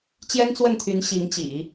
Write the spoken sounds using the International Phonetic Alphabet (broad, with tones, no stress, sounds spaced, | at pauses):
t͡ɕ j ɛ˥ n t͡s w ə˥˩ n t̪ʰ y˧˥ n ɕ i˧˥ ŋ t͡ɕ ḭ˨˩˦